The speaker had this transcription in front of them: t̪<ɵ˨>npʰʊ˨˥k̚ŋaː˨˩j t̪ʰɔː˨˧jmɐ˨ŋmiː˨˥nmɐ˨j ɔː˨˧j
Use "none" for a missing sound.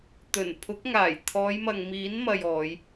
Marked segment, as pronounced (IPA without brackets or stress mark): ɵ˨˩